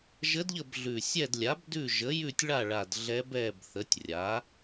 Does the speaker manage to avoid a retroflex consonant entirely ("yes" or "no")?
no